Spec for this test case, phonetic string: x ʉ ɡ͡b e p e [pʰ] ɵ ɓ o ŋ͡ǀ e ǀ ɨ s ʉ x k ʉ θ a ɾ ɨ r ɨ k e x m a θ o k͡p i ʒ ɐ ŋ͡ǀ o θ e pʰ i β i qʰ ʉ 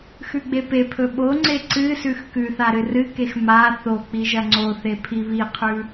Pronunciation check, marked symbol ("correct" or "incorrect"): correct